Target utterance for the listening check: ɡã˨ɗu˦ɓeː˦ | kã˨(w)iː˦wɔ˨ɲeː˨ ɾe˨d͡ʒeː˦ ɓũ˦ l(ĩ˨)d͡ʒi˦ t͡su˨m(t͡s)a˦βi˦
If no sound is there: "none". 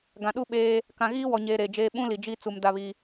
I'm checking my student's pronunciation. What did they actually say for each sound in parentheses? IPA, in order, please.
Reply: ɣ, i˨, d

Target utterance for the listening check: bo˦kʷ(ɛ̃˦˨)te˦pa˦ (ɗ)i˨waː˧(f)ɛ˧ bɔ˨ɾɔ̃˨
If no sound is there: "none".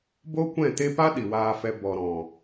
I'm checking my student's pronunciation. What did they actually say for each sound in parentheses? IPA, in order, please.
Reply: ɛ̃˦˨, ɗ, f

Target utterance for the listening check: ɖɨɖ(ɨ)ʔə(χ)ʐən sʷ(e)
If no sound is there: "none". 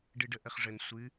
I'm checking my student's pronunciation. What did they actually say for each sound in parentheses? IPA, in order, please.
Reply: ə, χ, ɨ

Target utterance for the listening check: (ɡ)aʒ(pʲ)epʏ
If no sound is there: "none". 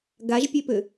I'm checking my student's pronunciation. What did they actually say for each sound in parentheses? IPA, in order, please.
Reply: ɡ, pʲ

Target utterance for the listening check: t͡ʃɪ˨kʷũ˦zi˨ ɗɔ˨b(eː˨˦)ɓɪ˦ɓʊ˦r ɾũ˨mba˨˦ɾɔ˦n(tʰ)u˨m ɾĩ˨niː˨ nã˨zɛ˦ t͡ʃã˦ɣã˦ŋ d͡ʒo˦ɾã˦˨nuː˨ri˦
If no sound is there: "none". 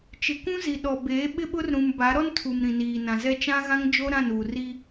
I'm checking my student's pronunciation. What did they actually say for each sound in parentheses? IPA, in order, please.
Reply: eː˨˦, tʰ

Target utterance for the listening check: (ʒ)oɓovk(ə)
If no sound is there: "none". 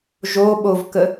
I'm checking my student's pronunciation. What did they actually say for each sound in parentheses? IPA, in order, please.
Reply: ʒ, ə

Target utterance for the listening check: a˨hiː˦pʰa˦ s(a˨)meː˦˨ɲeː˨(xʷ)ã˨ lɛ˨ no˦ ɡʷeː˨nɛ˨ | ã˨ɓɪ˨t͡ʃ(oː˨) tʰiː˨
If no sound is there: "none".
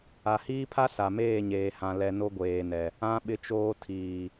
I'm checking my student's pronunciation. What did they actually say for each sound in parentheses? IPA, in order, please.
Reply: a˨, h, oː˨

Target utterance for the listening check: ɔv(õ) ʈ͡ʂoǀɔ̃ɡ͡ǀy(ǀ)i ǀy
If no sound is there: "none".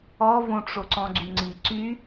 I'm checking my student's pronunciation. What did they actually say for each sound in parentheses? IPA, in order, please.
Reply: õ, ŋ͡ǀ

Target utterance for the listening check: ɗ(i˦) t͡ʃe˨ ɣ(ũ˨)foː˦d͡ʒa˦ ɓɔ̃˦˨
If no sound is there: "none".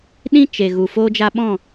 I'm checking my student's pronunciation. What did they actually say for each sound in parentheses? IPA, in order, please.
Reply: ĩ˦, u˨

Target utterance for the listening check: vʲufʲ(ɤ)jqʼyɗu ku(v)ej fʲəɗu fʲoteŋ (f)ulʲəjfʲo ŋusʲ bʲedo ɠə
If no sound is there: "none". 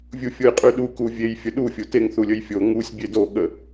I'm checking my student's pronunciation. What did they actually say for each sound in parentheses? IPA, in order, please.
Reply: o, vʲ, θ

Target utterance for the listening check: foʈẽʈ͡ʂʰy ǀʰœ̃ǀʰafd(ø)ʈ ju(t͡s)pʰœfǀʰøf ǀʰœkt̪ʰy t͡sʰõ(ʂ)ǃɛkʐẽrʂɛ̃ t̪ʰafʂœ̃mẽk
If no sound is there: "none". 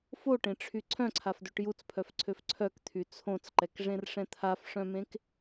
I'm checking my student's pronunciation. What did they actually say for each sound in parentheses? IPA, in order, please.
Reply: ø, t͡s, t͡s

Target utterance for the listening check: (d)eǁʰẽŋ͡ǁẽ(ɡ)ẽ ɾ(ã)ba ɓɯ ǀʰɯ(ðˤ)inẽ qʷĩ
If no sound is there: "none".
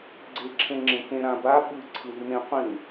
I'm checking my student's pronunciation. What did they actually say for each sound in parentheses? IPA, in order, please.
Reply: ɡ͡ǀ, k, ã, ð

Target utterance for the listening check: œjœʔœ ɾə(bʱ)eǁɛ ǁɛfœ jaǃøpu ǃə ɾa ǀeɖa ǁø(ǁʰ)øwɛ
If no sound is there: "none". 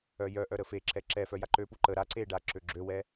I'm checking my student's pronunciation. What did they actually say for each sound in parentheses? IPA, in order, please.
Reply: f, ɡ͡ǁ

